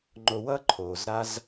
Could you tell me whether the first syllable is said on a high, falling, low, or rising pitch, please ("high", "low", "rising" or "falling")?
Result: low